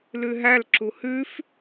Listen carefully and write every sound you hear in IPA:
l ʉ ɦ æ l ǁ u h ʉ f

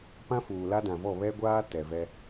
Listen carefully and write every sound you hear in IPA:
p ã˦ f uː˨ l a˦ d ã˨ v ɔ˦˨ β ɛ˦ ɡʷ aː˦ t ɛ˨ v ɛ˦

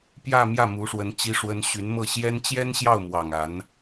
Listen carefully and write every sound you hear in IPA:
p j ä˥˧ m j ä˥˩ m u˧˥ ʂ w ə˧˥ n t͡ɕ i˥ ʂ w ə˥ n ɕ y˧˥ n m ɤ˥˩ ɕ j ɛ˥ n t͡ɕ j ɛ˥ n ɕ j ɑ˥˩ ʊ̯ m w ɑ˨˩ ŋ a˧˥ n

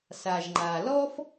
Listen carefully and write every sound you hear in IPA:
s a˩ ʒ ŋ͡ǃ a˩ l ɔ˥ f

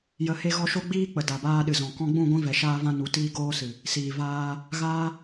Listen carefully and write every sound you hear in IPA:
j ə˨ h e˧ ɣ ɔ˧ ʃ o˦ ɡ͡b iː˦ k͡p ə˨ d a˨ b aː˧ ɗ ɨ˨ z ɔ̃˨ k ɔ̃˧ ɡ͡b ũ˦˨ ɡʷ ĩ˧ v ɛ˨ ʃ aː˧ v ã˧ n u˨ t iː˧ ɡ oː˧ s ɨ˨ | s iː˨ v aː˧ | ɣ aː˦

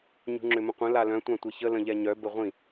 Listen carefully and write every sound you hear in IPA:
ɲ ṳ ŋ͡ǁ ʏ m ə̃ qʷ ə̃ l a l œ̃ tʷ ã tʷ ɛ ç ə l ə̃ ʎ ɛ ɲ œ b ə ʁʷ ĩ

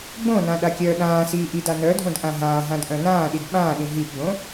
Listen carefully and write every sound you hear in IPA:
ɡ͡b õ n ã ɗ a kʲ œː ɗ ãː s iː ʔ i d a n œ dʱ õ d ʔ ã ɦ ãː ɦ ã d ʔ œ̃ n ãː ɗ i d ɓ ãː ɗ ĩ ɦ i p ɡ͡b õ

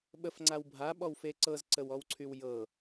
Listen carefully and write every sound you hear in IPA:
ɓ ə f ŋ͡ǀ a w bʱ a ɓ ɔ w f e ǀ ɤ z ǀ ə w ɔ w ǀʰ y w j ɤ

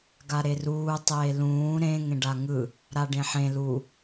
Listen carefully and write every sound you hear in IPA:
ɡ a ɾ e r uː tˤ eː l ũː ɾ ẽ ŋ ẽ ɖ a ŋ ɯ | ɾ a ɖ ẽ ħ ẽ l u

